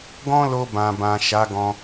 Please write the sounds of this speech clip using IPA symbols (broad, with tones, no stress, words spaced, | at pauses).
ɡɔ̃˦lo˧bã˨bã˨ ʃa˨˦ɡɔ̃˧